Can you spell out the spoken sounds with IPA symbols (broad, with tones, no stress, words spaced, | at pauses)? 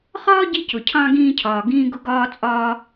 χɒː˥ɟi˧cʊ˩cʰɑ̃˧ ɡĩː˧cʰɒː˩ ɡĩː˧ɡʊ˧ɡɒː˧t͡sʼɒː˧